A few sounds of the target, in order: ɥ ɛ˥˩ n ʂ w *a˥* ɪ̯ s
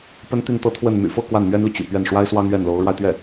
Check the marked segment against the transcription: correct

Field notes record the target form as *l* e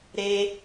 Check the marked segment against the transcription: incorrect: ɾ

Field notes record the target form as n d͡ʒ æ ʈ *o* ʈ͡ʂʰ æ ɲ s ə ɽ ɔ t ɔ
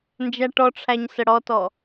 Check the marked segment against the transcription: incorrect: ɔ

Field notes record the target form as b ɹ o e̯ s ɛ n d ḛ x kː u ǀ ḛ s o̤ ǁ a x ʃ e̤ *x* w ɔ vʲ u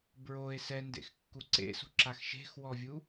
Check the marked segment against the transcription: correct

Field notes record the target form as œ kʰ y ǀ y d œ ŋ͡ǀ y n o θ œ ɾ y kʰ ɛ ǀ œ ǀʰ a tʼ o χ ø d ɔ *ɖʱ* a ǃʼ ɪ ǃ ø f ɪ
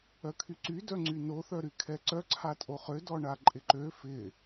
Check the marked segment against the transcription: incorrect: ɳ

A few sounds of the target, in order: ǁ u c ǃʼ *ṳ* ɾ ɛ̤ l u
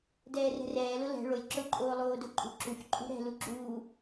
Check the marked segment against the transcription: correct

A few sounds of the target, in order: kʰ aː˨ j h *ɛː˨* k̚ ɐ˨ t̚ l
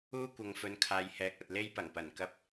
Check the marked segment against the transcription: incorrect: ɛː˨˥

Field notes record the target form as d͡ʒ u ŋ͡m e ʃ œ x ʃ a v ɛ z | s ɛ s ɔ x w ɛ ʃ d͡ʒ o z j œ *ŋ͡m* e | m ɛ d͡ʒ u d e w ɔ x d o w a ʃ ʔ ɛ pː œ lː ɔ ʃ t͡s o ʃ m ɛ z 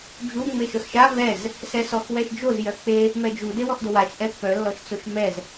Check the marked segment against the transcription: incorrect: k͡p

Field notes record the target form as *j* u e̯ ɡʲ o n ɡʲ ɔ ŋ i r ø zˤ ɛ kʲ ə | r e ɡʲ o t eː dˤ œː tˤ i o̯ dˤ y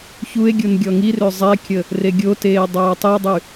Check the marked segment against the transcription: incorrect: ç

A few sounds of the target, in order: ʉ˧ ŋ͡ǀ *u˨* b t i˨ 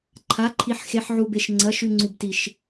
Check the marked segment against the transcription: correct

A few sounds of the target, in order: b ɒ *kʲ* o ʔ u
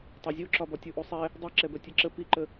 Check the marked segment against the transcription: incorrect: tʲ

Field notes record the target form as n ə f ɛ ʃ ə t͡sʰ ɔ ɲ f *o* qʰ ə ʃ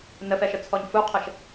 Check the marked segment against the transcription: incorrect: u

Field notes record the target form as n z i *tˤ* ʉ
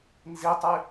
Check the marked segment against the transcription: correct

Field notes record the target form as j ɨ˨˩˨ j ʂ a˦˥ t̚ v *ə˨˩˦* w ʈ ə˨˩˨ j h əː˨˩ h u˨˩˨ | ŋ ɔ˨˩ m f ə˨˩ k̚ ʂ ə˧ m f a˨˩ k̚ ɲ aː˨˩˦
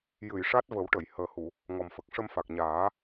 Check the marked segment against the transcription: correct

